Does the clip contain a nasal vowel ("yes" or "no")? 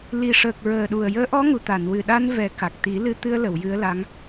no